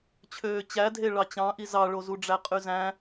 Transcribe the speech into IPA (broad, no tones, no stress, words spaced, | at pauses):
t͡ɕʰøːt͡ɕædʱe ɭɑt͡ɕɑ̃ʔi zɑɭozuɖ͡ʐæ qʼyzæ̃